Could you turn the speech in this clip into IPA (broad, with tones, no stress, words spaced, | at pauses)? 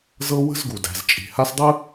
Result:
zɤ˦ wə̤˦zɡu˨dæ̤˨z t͡ʃʼi̤˨ha˦sdˤɯ˦